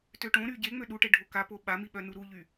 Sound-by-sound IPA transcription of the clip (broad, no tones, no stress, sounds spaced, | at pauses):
t ø ʈ õ ɾ y ɟ e ŋ͡m ø ɗ u ʈ e ɖʱ o k a p o ɓ a m i ɓ œ n u ɾ u ʎ y